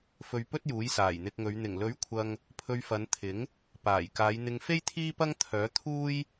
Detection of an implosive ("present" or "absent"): absent